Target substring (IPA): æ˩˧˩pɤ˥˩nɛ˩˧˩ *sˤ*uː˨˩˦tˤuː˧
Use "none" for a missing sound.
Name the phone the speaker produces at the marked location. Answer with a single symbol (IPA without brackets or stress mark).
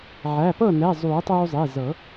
zˤ